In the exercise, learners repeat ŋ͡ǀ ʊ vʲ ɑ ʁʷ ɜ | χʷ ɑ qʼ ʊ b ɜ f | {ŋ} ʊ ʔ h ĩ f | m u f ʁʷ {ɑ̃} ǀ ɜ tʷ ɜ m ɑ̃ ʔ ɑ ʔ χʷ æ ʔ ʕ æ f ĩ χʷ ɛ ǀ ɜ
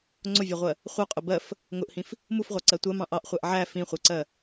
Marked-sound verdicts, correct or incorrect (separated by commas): correct, incorrect